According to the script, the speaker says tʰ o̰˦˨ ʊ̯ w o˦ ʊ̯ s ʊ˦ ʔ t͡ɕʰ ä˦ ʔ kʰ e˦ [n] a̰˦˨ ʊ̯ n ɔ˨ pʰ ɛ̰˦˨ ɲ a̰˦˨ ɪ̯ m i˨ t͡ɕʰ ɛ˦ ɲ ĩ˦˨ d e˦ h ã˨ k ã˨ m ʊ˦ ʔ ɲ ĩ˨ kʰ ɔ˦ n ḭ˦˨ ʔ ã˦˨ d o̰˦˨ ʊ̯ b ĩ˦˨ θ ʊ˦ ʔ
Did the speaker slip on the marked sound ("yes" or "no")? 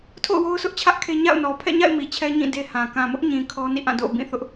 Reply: yes